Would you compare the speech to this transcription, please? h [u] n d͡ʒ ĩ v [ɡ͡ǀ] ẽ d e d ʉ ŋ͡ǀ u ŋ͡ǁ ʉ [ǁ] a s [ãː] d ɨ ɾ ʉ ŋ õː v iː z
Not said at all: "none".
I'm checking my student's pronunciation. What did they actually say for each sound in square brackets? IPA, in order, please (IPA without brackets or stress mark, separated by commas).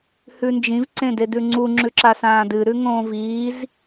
ʉ, ǀ, ǁ, ãː